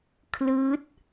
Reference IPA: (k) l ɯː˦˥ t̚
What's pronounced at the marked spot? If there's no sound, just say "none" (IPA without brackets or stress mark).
kʰ